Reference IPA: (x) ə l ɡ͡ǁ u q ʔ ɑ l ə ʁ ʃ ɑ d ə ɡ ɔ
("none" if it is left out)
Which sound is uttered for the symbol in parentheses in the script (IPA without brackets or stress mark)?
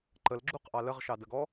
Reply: ǃ